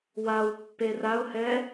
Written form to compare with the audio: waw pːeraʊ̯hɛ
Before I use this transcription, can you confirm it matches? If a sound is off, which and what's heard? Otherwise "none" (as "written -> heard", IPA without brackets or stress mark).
none